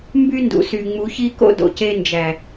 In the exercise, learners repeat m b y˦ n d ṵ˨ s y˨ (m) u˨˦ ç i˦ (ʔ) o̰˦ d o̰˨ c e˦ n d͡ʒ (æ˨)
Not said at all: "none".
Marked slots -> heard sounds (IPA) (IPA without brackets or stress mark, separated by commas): ŋ͡m, k, æ˨